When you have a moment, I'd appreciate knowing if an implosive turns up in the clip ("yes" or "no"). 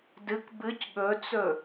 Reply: yes